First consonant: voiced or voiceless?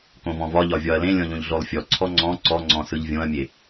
voiceless